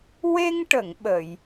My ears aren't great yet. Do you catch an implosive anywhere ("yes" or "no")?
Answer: yes